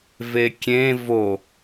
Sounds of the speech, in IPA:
vekʲẽ vo

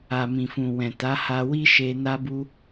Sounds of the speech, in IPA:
a˨mĩ˨fũ˨ wɛ̃˨ta˨˦ha˧ wi˦ʃe˧ na˦bu˦

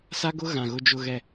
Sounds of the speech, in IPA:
sa˦ɡʊ˦ ɣã˨ɣʊ˦d͡ʒʊ˦ɣɛ˦

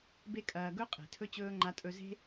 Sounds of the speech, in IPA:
be˦kʼɐː˧ ɡɵ˦ qʼe̤˨tʰɵ˧t͡ɕɵː˧ ŋ͡ǃa˦tʼɵ˦ ze̤˦

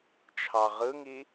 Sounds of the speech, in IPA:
t͡ʃʰɑʁɯŋi

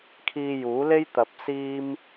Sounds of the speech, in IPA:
kʰiː˧juː˨˥le˥jt̪ɐ˨˥p̚ siː˥m

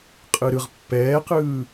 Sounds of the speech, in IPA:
qʼɯɾɯʁ pːɛːqɯː

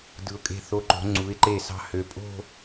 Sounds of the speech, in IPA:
dɯ˩˧ʊ̯kʼe̤˧˩θo˧ǃo̤˩˧ ŋ͡ǀu˩˧ɪ̯ǃe˧˩sɑ̤˧ hø˩˧pʼo̤˥˧

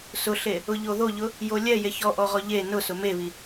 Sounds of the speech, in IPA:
sʊɬe | ʊʎoðoʎʊ | jolʲɛ jeçɔʔɔʁɔ ʎe nʊsʊ meβi

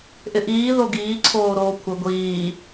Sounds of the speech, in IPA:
ʔɪʔiː ðoɡiː ǀʰoːɾoːkʷʰɪ ɡʷiː

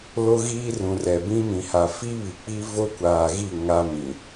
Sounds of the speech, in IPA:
lo˦ɣiː˦rũ˨rɛ˨ bĩ˦ mĩ˨ha˨ fi˦ βi˨k͡pi˦ vo˦kʷaː˨ɣi˦˨ ŋa˦mĩ˨

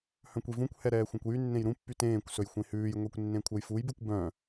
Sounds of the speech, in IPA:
hœ̃kʷivũkʷhɛ ɾɛːxʷɛ̃kʷjynːẽj ɾũpːy tẽːkʷ sɵjxʷẽhʉːjŋʷekʷ nːẽkʷʰœjfujbʉkʷ bœ̃

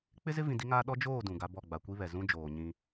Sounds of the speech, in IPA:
k͡pɪ˦zɪ˦ vĩ˨ di˦ŋaː˦ ɗɔ˦d͡ʒoː˦˨ dũ˨ɡa˦bɔ˦˨ ɡ͡ba˨kʷi˦βɛ˨ zũ˦d͡ʒoː˨ ɲĩ˦

